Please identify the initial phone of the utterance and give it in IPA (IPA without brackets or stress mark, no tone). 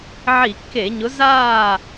ʕ